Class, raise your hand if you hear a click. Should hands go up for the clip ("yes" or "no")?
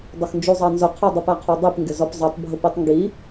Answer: no